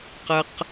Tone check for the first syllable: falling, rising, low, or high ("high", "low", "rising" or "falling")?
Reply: high